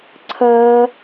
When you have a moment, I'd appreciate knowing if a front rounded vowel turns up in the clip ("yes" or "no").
no